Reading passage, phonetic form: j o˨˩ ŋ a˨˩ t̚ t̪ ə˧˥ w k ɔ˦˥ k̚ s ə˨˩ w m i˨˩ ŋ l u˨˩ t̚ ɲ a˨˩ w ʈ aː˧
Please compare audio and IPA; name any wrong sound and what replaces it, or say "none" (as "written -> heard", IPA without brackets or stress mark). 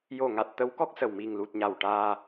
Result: none